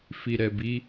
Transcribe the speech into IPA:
f i˨ ɾ ɛ˨ b i˨˦

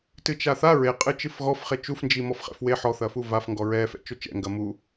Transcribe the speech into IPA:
t ɨ t͡ʃ a θ a ɹ e qʼ ɨ t͡ʃ ɨ f ɣ ɔ f χ e t͡ʃ u f n d͡ʒ i m ɔ f χ ɛ̰ f w e ħ ɔ θ ɐ f u v a f ŋ ɡ ɔ ɹ ɛ f ɛ̰ t͡ʃ o t͡ʃ ɛ̰ ŋ ɡ ɐ m u

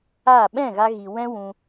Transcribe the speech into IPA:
a˦˨ ɓ ɛ̃˦˨ ɣ a˧ ɣ i˨ w ɛ̃˦ w ũ˧

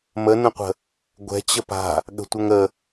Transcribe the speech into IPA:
m ə n ə̃ qʷ ə̤ | ɡʷ ɛ̤ t͡ɕ ə p a̤ | ɠ ə̤ tʷ ə ŋ ə

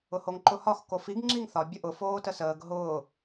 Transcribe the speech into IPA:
ʊ h o ŋ ǃ ʊ h ɒ x k o f i ɡ ŋ͡ǁ i ŋ θ ɒ bʲ ə ʔ ʊ f oː t ə s əː ɡ ɦ ʊː

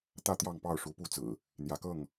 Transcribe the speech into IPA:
t̪ ä˥˨ t̪ j ɑ˥˨ ŋ p ɑ˥˨ ʊ̯ ʂ u˨˦ p u˥˨ t͡s ɹ̩˨˩ | n̪ j ä˨˦ k ɤ˥˨ ŋ

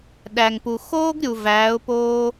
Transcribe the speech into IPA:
ɗ æ˩ ŋ p u˩ x oː˥ ɡ ɾʲ u˩ v æː˩˧ ʊ̯ p oː˧

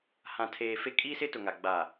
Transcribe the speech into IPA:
h ã˨ tʰ eː˨ f e˦ kʼ i˦ s ɪ˦ t ʊ˨ ŋ a˨ ɡ͡b aː˨

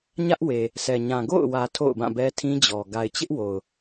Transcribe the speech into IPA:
ɲ ä˦ ʔ w e˨ | sʰ ɛ˨ ɲ ã˨ ɡ o̰˦˨ ʊ̯ w ä˨ tʰ o̰˦˨ ʊ̯ b ã˦˨ b ɛ˦ tʰ ĩ˦ d͡ʑ ɔ˨ ɡ a˨ ɪ̯ t͡ɕ ɪ˦ ʔ w o˨ ʊ̯

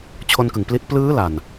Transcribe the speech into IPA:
t͡ɕʰ o˧ n k ɯ˨˩ ŋ p l i˦˥ t̚ p l ɯː˦˥ l a˨˩ n

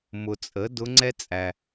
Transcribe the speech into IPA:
m ʊ˨ t͡sʼ ə˩˥ d ʊ˧˥ ŋ͡ǀ ɛ˥ t͡sʼ æ˨

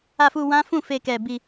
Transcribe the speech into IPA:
a˧ f u˧ w ã˦ f ũ˦˨ f e˧ k ɛ˧ b i˧

